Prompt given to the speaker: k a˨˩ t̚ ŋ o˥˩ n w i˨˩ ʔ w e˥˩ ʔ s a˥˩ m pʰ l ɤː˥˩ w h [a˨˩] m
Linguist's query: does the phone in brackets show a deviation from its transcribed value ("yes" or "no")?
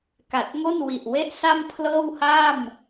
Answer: yes